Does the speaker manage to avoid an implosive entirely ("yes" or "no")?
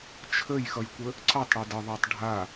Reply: yes